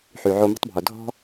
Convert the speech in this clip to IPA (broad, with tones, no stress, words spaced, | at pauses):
ħy˨ʕo˧mə̤˦tˤbʱo˨ dʱɔ̤˦